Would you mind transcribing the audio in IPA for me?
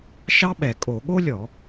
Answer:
ʃɑ˥ɓɛ˧˩˧ kʼo˧˩˧ɠo˥lʲɔ˧˩˧

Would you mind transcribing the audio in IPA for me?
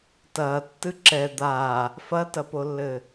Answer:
tɐːtːɨ ǁɛ d̪a | fɐtɐpolːɘ

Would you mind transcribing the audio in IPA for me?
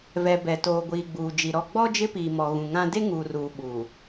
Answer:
vɛ˨bɛ˨toː˨ɡʷiː˨ ɡ͡buː˨d͡ʒi˨ɾɔ˦˨ ɡ͡bɔ˦ d͡ʒɪ˦piː˨mɔ˨ ɣũ˨ŋã˦ de˦ ŋuː˨ruː˨ ɓuː˨

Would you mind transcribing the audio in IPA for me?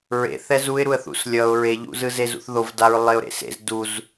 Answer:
ɹḛ θɛzuɪ̯ɾuə̯ θṵslʲʌʊ̯ ɹeʎṵ zɯzezṵθðov daɹlˠeʊ̯ɾḛsḛz duz

